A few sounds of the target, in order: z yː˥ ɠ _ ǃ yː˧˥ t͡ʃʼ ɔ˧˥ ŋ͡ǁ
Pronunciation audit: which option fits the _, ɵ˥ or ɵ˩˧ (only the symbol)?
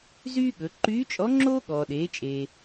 ɵ˩˧